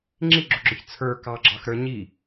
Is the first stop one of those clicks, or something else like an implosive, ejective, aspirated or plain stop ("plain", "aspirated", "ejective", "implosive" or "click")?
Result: click